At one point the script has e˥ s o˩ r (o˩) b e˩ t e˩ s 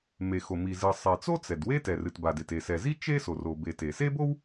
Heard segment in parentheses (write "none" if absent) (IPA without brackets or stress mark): o˩